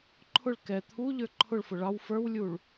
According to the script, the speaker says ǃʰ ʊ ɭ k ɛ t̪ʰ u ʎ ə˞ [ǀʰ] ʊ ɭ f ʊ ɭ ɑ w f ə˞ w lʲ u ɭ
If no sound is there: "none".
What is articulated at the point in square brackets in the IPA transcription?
ǃʰ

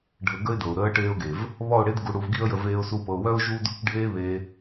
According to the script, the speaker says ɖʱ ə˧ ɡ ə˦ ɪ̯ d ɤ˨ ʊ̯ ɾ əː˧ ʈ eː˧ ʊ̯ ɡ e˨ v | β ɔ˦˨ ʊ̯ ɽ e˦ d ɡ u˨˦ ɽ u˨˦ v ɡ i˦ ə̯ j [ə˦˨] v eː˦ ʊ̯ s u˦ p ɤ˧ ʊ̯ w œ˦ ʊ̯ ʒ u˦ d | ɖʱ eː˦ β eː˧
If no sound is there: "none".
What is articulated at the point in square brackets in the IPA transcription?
ə˧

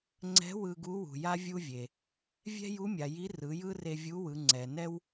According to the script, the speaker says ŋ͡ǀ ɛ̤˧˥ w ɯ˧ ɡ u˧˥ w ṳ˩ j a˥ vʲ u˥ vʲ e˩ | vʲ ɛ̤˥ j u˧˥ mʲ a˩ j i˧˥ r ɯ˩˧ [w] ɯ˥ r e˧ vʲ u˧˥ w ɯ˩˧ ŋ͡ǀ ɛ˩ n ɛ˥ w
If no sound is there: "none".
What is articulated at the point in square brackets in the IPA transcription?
j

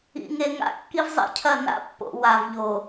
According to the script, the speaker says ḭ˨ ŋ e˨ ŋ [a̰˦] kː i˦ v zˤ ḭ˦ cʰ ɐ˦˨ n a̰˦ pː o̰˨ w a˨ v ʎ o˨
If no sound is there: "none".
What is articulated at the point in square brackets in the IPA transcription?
a̰˦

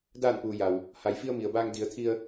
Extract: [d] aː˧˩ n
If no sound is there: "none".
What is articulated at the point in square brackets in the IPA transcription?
d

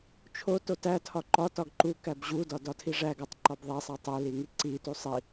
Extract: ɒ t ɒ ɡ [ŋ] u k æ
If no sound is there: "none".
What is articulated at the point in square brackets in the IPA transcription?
ǃ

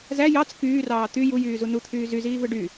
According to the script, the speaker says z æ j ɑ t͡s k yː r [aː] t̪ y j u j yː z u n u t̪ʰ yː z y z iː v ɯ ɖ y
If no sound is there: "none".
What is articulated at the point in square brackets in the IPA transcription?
ɑː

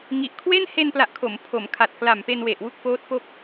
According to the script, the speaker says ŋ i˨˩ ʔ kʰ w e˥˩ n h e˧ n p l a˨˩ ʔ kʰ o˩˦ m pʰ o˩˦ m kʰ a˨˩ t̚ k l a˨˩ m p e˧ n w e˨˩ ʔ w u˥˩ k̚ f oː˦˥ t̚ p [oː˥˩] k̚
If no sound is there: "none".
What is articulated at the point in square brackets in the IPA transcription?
o˥˩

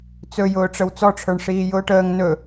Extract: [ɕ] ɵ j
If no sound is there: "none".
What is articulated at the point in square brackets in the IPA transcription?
t͡s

